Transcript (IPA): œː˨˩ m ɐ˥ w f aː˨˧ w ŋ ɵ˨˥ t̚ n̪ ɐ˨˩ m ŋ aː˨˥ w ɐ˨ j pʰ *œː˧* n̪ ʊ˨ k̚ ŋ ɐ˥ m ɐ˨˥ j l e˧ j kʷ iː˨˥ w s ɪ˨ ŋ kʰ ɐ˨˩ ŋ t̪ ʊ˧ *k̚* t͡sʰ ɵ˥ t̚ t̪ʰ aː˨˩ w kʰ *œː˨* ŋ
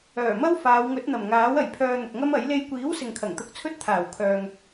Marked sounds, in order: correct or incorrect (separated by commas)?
correct, correct, correct